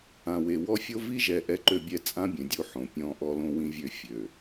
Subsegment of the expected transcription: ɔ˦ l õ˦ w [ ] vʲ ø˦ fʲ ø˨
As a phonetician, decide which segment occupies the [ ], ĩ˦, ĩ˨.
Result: ĩ˦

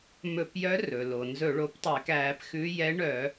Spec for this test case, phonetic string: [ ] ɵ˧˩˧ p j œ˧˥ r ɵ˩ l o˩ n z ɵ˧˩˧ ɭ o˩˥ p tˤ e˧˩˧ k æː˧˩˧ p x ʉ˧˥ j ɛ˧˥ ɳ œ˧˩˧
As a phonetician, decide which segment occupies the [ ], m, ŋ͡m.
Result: m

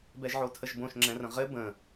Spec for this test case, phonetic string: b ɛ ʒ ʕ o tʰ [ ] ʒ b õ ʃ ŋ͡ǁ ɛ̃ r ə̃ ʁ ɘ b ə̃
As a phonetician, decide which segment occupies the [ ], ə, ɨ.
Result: ə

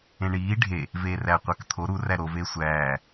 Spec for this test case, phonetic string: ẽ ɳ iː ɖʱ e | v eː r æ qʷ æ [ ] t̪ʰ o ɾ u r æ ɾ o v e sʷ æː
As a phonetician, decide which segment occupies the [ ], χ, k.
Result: k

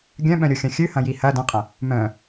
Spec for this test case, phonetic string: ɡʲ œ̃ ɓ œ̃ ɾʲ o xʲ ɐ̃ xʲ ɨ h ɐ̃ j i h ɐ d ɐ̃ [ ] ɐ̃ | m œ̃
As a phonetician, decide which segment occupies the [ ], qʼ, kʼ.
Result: qʼ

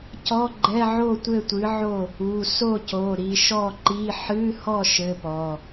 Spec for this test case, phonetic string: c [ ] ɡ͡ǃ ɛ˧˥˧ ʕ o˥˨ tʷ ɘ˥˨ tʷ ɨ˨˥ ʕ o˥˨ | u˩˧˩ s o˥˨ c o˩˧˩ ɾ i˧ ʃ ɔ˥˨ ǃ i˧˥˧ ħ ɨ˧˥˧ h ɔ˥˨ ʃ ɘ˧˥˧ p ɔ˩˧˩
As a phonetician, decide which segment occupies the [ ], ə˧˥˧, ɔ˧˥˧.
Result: ɔ˧˥˧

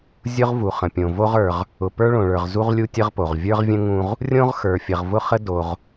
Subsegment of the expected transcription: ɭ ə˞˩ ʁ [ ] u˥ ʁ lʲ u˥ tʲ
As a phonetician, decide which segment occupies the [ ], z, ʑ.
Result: z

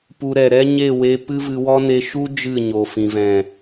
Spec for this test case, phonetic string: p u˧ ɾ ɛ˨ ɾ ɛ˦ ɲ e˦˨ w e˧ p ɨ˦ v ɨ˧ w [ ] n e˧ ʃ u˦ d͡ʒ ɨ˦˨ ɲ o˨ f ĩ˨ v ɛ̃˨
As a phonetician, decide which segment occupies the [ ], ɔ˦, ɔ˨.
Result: ɔ˦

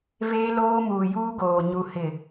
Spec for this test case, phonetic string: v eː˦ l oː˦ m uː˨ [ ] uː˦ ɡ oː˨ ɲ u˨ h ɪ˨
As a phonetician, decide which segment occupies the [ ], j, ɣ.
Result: j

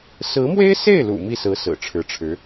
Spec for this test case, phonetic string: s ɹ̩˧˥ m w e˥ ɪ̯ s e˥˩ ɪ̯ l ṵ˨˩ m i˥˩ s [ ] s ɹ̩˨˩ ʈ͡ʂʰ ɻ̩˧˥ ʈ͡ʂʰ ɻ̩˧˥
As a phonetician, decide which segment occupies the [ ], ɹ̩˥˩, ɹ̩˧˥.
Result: ɹ̩˧˥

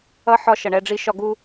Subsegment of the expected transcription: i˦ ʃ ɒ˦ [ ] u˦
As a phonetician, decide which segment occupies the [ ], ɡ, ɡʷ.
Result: ɡ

